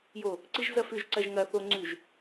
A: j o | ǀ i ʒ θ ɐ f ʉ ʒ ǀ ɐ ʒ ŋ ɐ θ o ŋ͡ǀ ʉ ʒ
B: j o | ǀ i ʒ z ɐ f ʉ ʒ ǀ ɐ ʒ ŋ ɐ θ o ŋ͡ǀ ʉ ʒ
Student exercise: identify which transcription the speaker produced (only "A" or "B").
B